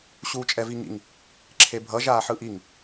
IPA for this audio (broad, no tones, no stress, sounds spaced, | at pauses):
ɕ uː t͡ʃʼ ɛ v i ŋ ḭ ŋ | ǁʰ e bʱ ʌ ʒ aː ħ ɯ ʔ i ŋ